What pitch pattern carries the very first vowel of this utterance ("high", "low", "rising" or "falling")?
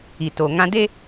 low